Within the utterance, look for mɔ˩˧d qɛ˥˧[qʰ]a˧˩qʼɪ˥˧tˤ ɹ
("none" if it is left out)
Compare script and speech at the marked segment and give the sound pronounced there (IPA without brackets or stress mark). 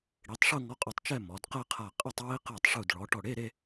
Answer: qʰ